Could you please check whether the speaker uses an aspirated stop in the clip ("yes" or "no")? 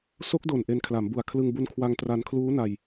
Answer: yes